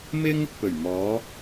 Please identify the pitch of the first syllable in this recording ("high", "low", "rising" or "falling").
high